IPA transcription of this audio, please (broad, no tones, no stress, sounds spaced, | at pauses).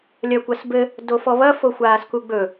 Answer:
lʲ ɐ kʷ ɐ s b ɘ | d o f ɔ β ɐ f o xʷ aː s k u ɡ͡b ɵ